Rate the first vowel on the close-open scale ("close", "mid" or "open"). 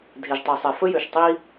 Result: mid